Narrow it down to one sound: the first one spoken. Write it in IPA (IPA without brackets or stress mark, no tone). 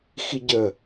x